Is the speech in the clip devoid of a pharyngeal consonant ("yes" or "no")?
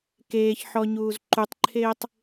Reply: no